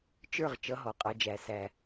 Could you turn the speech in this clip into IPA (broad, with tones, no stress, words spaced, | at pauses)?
t͡ʃə˞˥˩ʁ t͡ʃʌ˨˥ɦɔ˨˩qʼɑ˧d͡ʒæ˨˩ sæ˨˩